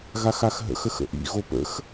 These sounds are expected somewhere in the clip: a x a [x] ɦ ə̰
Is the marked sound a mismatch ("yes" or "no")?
no